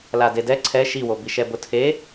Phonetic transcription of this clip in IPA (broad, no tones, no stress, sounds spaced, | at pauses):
l a d e d ɛ ǀʰ ɛ ʃ i w o b i ʃ ɛ b ʊ tʰ e